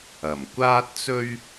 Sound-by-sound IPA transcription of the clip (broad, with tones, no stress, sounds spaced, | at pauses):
ɐ˨˩ m kʷ aː˥ t̚ t͡s ɵ˥ ɥ